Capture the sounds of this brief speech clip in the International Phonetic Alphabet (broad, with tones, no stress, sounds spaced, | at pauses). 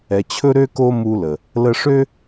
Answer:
ɛ˨ t͡ɕʰ ɵ˦ ɾ ø˦ k o˦ m u˦ l ə˨ | l ə˧ ʂ ø˦